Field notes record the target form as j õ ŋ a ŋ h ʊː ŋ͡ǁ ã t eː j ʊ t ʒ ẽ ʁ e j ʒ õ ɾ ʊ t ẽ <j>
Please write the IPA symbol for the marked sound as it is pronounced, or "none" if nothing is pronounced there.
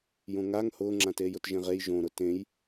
j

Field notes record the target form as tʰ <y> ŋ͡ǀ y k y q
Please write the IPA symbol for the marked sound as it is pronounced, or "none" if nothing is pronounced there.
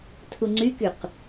u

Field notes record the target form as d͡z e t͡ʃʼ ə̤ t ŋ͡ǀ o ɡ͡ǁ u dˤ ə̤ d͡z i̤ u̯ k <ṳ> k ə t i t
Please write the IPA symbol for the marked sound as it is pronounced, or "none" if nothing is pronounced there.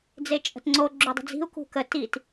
ṳ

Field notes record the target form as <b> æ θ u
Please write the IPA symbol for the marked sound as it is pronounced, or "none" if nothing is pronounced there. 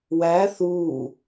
w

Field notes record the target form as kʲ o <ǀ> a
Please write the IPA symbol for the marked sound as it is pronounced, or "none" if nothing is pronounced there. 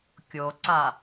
ǀ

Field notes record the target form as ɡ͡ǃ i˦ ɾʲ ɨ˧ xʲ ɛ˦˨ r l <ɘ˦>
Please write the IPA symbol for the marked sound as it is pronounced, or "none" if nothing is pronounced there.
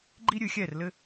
ɘ˦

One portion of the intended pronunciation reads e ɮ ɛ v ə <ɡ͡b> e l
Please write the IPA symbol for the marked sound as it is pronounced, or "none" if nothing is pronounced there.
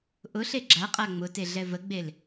ɡ͡b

